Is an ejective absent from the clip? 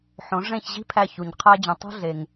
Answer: yes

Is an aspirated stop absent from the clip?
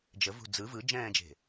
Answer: yes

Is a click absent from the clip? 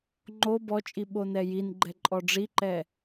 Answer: no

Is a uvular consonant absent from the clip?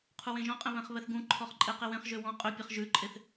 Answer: no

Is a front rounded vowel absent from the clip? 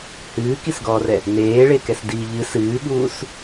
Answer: yes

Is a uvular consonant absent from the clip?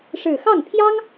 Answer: yes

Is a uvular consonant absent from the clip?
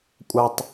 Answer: yes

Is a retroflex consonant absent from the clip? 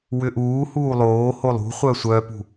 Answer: yes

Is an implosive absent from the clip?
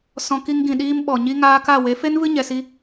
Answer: no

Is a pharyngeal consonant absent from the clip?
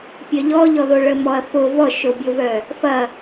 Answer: yes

